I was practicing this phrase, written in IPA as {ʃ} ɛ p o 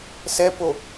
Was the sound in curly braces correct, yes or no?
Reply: no